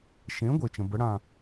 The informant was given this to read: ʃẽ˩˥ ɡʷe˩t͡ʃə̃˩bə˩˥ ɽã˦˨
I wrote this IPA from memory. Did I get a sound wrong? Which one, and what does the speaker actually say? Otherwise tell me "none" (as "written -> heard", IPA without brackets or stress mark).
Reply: none